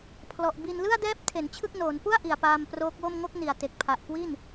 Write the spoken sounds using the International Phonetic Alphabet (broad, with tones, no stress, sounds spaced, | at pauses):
pʰ l ɔ˨˩ ʔ b i˧ n l ɯ˥˩ a̯ d ɛː˦˥ p̚ tʰ e˩˦ n t͡ɕʰ ɯ˥˩ k̚ n oː˩˦ n p u˥˩ a̯ ʔ i˨˩ a̯ p aː˧ m p r oː˦˥ k̚ w o˥˩ m ŋ o˥˩ k̚ n i˨˩ a̯ t e˨˩ k̚ pʰ a˨˩ ʔ k w i˥˩ n